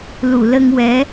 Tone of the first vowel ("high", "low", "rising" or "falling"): low